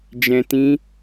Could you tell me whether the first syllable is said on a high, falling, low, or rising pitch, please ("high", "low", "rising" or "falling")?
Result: low